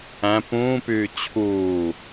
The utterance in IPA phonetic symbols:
æ̃ p ũː p yː t͡ɕʰ uː

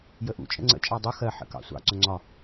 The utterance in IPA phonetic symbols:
j ə ʔ ṵ t͡ʃʼ ə̰ ŋ͡ǀ ə̰ t͡ʃʼ ɑ dˤ u x ɜ ħ ə̰ k ɑ̰ sʷ ɑ̰ ǀ ʊ ŋ͡ǀ ɒ

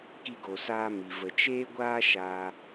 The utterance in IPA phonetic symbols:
k i˧ ɡ o˨ s aː˧ m i˨ v ə˨ t͡ʃ eː˦ ɡʷ aː˦ ʃ aː˧

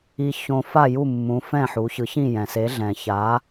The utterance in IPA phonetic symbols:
i˧ ç õ˧ f a˥˩ j u˥˩ mː ũ˩˥ f ɛ̃˥˩ ħ u˩˥ ç ɯ˩˥ ç ĩ˥˩ j ɛ̃˩ s e˩˥ ɮ ɛ̃˩ ç a˩˥

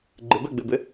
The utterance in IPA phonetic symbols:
ɡ͡ǃ ɪ b ɛ ɡ͡b ɪ b ɪ

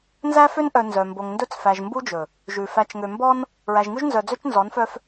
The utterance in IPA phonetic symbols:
n z æ˦ f ø˦ n ʔ œ˨ n z œ˨ m b o˨ ŋ n d ɵ˦˨ t͡s f æ˨ ʒ m b u˦ d͡ʒ ɵ˨ | ʒ ʉ˨ f æ˨ t͡ʃ ŋ ø˨ m b ɔ˦ n | ɹ æ˨ ʒ ŋ ʉ˦ ʒ n z œ˨ d͡z ø˦ t͡ʃ n z ɔ˨˦ n f œ˦ f

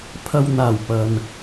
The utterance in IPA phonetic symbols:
pʰ ɐ˨ w n̪ aː˨˩ w p ɐ˨ n

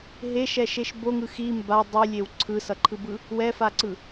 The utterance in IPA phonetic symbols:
ɦ e ʃ ɛ ʃ e ʃ b o ŋ ɯ x i m b a dˤ i lʲ e w ǀʰ ɯ s ʌ ǃʰ ɯ b ɯ | w ɛ f a ǀ ɯ

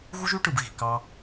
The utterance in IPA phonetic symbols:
ɣ u˦ ʒ y˦ ʈ ɯ˨ b ɣ i̤˨ k ɑ˧

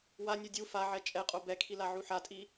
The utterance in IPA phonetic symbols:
w a nʲ ɯ dʲ u f a ʕ ɛ t͡ʃʼ ɛ qʼ o b ɛ kʰ i l a ʕ u ħ a tʼ i

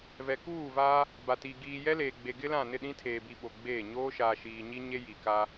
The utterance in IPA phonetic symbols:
v ɛ˨ k uː˦˨ v aː˦ | b a˨ t i˨ ɡ iː˨ j ɛ˦ l eː˨ ɡ͡b e˨ ɡ ɪ˦ l ã˦˨ n ɪ˦˨ ɗ ĩ˦ tʰ eː˨ b i˨ ɓ o˨ ɡ͡b eː˦˨ ɲ oː˦ ʃ aː˨ ʃ iː˨ ɲ i˦ ɲ e˦ j i˨ k a˦

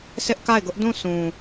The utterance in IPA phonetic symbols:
sʰ ɪ˦ ʔ k a˦˨ ɪ̯ ɡ ʊ˦ ʔ d ũ˦˨ s ũ˨

